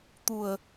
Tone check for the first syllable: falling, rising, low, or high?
low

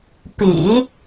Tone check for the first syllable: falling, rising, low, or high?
low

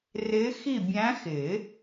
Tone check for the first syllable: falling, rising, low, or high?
rising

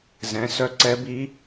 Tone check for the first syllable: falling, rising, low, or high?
rising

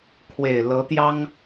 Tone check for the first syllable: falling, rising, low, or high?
low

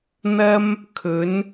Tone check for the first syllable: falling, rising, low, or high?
high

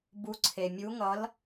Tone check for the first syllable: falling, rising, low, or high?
rising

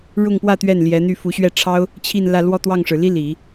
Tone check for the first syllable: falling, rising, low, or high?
falling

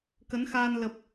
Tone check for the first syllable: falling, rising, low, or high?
rising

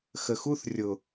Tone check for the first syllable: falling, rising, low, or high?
low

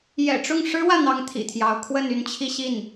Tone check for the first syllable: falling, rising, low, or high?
low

